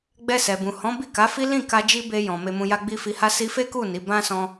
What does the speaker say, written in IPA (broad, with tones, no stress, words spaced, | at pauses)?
ɡ͡bɛ˧sɛ˨bũ˨ hɔ̃˨˦bi˦˨ ka˨˦fi˦ lĩ˦˨ka˧ d͡ʒi˦ be˧jɔ̃˨ me˧mũ˧ja˦ɡ͡bi˦ fi˧ ha˦si˦ fe˦ku˦˨ ni˨˦ bã˦sɔ̃˧